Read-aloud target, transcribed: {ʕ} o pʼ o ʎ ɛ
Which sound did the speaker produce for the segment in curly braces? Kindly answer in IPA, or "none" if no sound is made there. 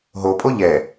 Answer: ɦ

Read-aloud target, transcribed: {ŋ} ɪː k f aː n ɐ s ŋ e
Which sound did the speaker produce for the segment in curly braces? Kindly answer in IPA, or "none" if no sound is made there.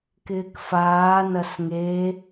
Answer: k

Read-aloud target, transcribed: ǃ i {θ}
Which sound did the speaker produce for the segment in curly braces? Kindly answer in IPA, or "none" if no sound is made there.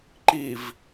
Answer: v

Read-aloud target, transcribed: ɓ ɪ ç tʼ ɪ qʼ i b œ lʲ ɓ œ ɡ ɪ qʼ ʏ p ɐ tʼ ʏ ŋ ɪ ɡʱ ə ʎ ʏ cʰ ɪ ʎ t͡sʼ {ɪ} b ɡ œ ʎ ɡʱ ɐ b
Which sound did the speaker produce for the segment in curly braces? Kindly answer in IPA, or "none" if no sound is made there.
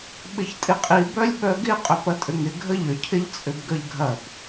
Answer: ʏ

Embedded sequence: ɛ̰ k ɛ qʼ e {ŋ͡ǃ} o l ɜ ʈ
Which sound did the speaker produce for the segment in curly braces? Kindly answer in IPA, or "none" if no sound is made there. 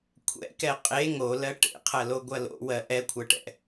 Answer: ŋ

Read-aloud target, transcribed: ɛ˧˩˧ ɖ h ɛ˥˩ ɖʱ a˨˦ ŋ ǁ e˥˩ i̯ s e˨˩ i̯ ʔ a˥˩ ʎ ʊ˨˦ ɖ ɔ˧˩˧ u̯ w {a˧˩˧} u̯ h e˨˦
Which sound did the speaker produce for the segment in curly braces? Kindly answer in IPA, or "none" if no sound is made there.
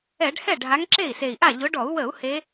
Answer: ə˧˩˧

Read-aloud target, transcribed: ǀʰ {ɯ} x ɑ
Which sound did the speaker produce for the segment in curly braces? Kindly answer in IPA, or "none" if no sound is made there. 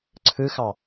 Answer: ɯ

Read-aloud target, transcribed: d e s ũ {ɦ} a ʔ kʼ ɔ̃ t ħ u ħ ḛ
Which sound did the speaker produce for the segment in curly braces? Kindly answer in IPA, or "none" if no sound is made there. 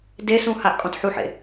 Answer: h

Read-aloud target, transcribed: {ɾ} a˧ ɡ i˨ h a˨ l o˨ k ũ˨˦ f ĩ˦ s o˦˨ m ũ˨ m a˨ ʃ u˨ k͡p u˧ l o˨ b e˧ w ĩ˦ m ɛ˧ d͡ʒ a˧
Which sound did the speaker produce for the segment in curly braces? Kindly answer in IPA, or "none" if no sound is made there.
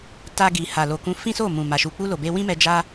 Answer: t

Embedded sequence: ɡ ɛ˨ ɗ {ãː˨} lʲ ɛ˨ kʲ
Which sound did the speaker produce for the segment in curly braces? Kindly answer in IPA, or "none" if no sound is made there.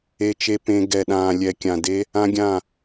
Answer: ãː˨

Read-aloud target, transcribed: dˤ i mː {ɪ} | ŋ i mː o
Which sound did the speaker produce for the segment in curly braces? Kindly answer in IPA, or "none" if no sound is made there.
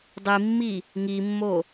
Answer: i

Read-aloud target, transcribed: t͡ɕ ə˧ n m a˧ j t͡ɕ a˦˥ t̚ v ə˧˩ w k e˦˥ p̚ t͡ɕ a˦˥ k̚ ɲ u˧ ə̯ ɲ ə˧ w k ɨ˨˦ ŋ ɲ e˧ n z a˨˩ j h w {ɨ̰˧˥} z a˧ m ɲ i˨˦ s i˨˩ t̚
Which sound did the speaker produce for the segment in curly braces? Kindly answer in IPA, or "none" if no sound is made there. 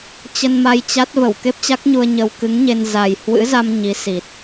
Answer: ɨ̰˧˥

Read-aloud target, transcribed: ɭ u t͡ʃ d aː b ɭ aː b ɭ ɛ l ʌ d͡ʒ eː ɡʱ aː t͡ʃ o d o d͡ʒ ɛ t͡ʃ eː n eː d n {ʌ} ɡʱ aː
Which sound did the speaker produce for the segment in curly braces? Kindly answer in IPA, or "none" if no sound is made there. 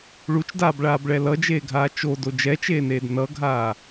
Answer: ʌ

